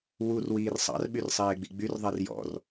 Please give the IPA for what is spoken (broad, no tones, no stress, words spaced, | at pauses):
wur wiːrsˤɑ̰r ɓyrsˤeːɡ͡biɡ͡byr ðˤɛrjɔ̰r